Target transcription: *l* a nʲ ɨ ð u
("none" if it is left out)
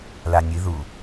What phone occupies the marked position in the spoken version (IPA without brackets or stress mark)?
l